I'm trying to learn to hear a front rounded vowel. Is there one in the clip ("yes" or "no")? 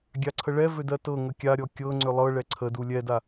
yes